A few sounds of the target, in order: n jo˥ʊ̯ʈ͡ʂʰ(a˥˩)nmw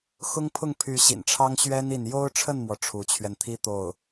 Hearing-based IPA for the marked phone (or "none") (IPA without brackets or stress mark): ə˥˩